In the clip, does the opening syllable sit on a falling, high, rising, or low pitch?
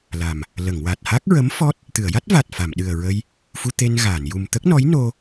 low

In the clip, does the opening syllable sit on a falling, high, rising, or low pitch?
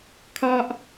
high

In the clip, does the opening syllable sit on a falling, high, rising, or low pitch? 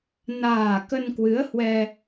low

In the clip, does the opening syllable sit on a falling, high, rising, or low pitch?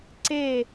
falling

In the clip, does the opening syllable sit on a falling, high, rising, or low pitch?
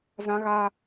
high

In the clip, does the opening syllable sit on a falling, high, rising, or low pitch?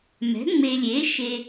rising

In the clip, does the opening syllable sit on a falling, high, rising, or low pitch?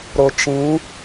low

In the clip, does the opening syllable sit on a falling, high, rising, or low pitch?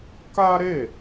high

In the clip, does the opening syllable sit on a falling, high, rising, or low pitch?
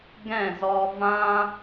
falling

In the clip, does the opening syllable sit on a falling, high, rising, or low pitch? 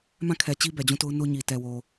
falling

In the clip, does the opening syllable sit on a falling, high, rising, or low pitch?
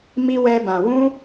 high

